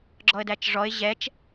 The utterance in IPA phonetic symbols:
ɡ͡ǁɔə̯dæt͡ʃʐɔɪ̯ ʑɛt͡ʃ

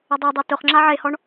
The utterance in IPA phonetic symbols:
ʊdˤodˤe tʊχŋ͡ǁa ʕehɔɳ

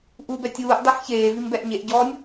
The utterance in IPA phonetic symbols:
ʔubɛ tʲuːʔ dˤiħçeːvim bɛʔɲeʔɟɔːnʲ

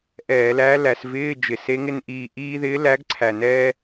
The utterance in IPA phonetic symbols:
ʔɛː˧˩˧læ˧˥ læ˧˩˧svɪː˧˥˧d͡ʒɪ˨˩se˧˥ ŋɪ˧nʔiː˨˩ ʔiː˧ðɪː˧˥ læ˧˥ɡǀʰæ˨˩ nɛː˧

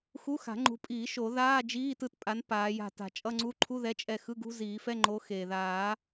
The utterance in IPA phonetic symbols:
xu˧˥˧xa̤˨˩˦ŋ͡ǃṳ˨˦pʼiː˨˩˦ ʃo˨˩˦ðaː˧˥˧ d͡ʒiː˧˥˧tɯ˦˨tpʼa˨˦n paː˨˦ja̤˦˨ ta̤˨˩˦t͡ʃʼʌ˧˥˧ŋ͡ǀu˧˥˧ ǃʰu˧˥˧ ðɛ˧˥˧t͡ʃʼɛ˦˨ xɯ˧˥˧ɡṳ˧˥˧ziː˨˩˦fɛ˧˥˧ ŋ͡ǃo˨˦ xeː˩ðaː˨˩˦

